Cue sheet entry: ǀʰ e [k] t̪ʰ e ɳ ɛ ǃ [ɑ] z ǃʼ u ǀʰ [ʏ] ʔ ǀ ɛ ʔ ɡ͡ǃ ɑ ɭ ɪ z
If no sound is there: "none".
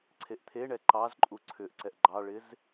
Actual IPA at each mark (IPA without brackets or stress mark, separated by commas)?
ʔ, ɑ, ʏ